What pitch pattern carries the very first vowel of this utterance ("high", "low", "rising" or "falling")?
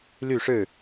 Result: falling